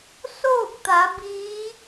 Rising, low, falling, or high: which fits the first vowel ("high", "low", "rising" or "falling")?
falling